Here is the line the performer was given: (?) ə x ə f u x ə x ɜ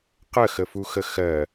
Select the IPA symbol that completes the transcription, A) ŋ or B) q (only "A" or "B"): B